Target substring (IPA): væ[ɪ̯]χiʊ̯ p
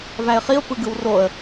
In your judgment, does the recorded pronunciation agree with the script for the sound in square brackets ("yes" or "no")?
yes